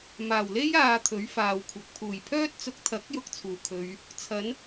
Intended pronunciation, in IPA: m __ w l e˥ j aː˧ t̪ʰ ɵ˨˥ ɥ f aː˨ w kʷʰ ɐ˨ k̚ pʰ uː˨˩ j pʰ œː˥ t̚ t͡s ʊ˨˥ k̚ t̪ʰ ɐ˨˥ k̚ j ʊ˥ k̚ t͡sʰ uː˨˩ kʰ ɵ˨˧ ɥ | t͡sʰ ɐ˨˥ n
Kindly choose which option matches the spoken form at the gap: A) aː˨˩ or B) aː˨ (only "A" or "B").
A